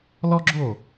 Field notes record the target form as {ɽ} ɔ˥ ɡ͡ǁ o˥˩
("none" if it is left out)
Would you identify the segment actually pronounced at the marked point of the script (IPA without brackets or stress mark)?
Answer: l